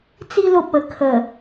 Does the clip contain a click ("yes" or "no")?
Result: no